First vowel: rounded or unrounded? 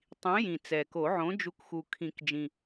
unrounded